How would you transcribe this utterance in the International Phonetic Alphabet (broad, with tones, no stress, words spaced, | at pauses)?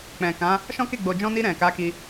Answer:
k͡pɛ̃˨kã˨˦ | ʃɔ̃˦ke˦˨ɡ͡bo˨ d͡ʒɔ̃˧ni˧ ɾɛ̃˨ka˨˦ ki˧